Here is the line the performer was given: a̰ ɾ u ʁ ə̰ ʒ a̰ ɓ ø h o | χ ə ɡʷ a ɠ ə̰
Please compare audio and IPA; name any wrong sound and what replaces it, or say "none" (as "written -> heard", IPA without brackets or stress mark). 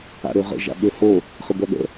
u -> ø